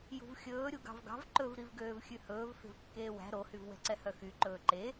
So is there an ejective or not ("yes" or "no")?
no